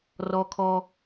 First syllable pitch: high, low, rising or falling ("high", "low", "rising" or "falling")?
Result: high